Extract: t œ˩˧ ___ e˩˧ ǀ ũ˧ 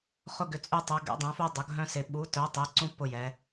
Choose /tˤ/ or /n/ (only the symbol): tˤ